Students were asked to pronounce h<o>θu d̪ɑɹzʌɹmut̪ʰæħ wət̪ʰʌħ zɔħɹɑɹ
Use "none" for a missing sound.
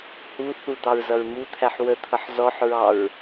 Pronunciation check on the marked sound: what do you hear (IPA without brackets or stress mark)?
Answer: u